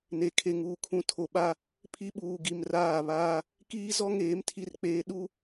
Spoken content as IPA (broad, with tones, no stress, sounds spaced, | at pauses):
n e˨ kʰ e˨ ŋ uː˨ kʰ ũ˨˦ tʰ o˨ ɓ a˦ | pʰ i˦ ɓ uː˨ ɡ i˨ m r aː˦˨ β aː˦ | k iː˦ z ɔ˦ ŋ eː˨˦ m tʰ i˦ r k͡p eː˦ ɗ u˦